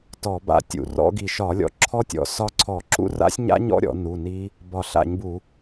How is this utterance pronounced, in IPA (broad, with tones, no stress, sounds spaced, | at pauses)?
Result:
t ɔ˧˩˧ b a̰˧˩ tʲ ṵ˧˩˧ r ɔ̰˦˥ ɡ i˧˩ ʃ ɒ˧˩˧ lʲ ɔ̰˧˩ ǁʰ ɔ˦˥ tʲ ɔ̰˧˩˧ s ɒ˦˥ ǀʰ ɔ˧˩˧ ǁ ṵ˦˥ r a̰˦˥ sʲ ɲ a̰˦˥ ɲ ɔ̰˦˥ ɾʲ ɔ̰˧˩˧ n u˩˧˩ n i˦˥ | b ɒ˧˩ ɬ a̰˧˩˧ ɲ b u˧˩˧